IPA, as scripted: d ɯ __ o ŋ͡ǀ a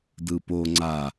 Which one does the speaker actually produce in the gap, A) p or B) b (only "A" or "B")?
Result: A